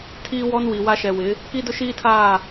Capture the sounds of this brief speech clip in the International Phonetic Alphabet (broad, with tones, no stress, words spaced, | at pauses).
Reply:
tʰiː˦wɔ˦nwi˨wa˦ ʃɛ˨wɪ˨˦ | ki˦dʊ˦ʃiː˦tʰaː˦˨